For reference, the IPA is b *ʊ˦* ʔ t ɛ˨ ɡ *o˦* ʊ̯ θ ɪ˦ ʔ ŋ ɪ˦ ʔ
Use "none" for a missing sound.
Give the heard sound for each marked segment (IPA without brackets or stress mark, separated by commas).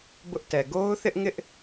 ʊ˦, o˦